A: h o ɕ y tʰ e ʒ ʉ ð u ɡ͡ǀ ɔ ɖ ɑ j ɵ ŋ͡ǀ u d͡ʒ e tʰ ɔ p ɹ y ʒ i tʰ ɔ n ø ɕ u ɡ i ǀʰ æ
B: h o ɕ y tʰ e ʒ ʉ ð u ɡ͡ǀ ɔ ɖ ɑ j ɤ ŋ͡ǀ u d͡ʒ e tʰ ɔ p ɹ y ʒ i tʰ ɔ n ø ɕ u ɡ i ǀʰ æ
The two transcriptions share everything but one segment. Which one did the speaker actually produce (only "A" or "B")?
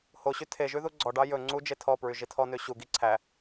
A